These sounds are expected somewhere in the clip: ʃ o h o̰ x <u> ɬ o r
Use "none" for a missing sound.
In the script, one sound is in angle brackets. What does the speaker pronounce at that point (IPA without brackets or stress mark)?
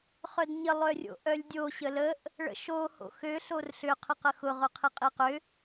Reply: ø